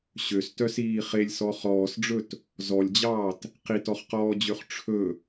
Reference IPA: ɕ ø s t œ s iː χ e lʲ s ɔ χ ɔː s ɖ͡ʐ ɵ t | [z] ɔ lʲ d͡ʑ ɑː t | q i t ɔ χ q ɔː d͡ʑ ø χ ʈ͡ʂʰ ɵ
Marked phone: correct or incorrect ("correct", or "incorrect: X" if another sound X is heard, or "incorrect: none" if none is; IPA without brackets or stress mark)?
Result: correct